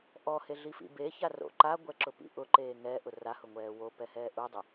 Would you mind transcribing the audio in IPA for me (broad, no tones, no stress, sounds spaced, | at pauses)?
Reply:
ʔ ɔ h e ɮ i f ḭ b e ç a r o̰ ǃ a ɡʷ ɛ ǁ ʊ p ḭ ʔ ʊ ǃ eː ŋ ɛ ʔ ʊ r a h ʊ ŋʷ ɛː w o p ɛ h ɛː ʔ u dˤ ʊ